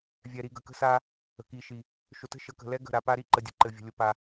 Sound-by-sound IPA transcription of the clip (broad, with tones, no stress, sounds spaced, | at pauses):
vʲ ɛ˨ ɾ i˨ ɡ ə˨ k ə̤˦ s a˦ | ə̤˨ k i˨ ʃ i˨ | ʃ ʊ˨ t ə̤˦ ʃ ə˨˦ k ə̤˨ l ɛ˦ ɡ ə̤˦˨ ɾ a˨ p a˦ ɾ i˦ ǃ ə˨ dʲ ə̤˨ ǃ ɘ˨ vʲ ə̤˨ lʲ ʊ˨ p a˨